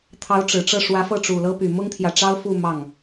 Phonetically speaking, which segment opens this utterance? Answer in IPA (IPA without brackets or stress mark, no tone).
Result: t̪ʰ